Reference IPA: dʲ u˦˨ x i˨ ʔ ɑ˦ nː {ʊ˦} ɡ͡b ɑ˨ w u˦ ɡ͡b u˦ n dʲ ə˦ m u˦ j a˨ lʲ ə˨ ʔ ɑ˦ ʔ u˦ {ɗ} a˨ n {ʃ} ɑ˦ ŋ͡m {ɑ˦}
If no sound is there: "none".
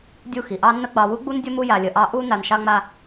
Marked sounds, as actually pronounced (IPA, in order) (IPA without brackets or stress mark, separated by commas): ə˦, n, ʃ, a˦